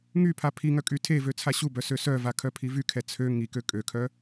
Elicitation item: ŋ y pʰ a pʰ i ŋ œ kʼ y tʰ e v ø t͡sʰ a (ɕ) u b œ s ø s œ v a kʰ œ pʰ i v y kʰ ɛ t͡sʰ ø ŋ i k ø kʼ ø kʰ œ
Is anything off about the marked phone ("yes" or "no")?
no